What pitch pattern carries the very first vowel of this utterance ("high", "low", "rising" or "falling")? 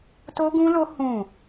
high